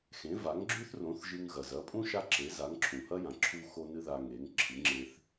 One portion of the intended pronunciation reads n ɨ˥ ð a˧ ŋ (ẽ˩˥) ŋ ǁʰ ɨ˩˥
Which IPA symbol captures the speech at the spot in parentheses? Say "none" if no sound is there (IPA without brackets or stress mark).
e˩˥